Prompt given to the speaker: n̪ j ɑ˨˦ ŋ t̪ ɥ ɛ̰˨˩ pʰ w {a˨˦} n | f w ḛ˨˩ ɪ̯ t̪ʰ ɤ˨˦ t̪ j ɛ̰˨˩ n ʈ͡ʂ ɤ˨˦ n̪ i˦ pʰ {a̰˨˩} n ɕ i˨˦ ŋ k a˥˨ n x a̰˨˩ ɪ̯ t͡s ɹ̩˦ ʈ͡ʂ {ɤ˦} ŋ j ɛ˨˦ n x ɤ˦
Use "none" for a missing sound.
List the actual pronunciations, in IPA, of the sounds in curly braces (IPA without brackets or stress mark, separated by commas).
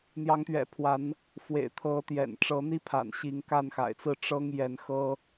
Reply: a˨˦, a̰˨˩, ɤ˦